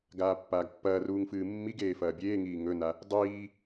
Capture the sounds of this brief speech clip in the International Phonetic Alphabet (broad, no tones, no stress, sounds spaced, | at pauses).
ɡ aː pː aː ɡ pː ɐː r uː ŋ f ɨː mː i ɡ eː f ɐː bʲ eː ŋ iː ŋ ɵ n a | dˤ iː